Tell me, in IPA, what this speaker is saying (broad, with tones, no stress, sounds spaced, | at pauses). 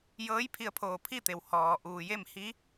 j ɤː˧˥ j pʰ i˧ ə̯ pʰ oː˧˩ pʰ i˥˨ t̪ e˩ w h ɔː˩ ʔ uː˩ j e˥˨ m h i˧˥